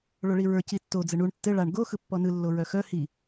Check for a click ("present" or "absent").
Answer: absent